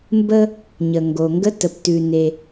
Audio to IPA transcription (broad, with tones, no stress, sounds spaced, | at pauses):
m b ə˥ | ɲ ə˩ ŋ ɡ o˩ ŋ ɡ ə˥ t ə˩ p t ʉ˩ n e˩